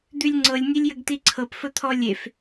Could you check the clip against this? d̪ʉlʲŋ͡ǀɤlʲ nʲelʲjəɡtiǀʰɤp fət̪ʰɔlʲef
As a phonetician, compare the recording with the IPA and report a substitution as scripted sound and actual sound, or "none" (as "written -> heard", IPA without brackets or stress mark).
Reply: none